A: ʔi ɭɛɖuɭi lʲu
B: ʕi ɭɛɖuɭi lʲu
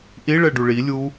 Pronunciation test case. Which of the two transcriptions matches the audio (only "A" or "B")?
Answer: A